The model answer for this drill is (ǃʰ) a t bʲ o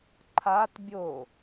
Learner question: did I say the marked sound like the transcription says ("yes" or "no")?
yes